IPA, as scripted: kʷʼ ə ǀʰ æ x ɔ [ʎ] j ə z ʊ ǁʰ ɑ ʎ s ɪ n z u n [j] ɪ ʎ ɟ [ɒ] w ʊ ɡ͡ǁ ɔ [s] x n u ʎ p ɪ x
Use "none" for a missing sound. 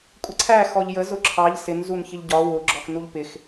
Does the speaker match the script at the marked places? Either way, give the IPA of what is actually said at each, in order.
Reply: ʎ, ç, ɒ, none

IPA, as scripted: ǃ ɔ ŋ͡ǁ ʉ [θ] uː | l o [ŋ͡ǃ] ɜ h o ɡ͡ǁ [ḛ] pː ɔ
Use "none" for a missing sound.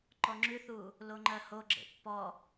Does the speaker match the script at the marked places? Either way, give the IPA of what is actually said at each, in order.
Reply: θ, ŋ͡ǃ, ḛ

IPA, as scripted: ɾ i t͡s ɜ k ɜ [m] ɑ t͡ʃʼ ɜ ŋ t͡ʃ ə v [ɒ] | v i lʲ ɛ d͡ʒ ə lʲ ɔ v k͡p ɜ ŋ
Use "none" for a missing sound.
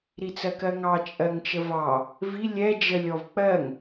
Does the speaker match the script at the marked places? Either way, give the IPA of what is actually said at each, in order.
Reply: ŋ, ɑ

